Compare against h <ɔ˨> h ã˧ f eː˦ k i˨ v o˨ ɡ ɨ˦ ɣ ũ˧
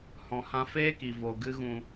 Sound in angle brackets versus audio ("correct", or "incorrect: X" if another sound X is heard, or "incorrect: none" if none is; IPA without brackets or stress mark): incorrect: ɔ̃˨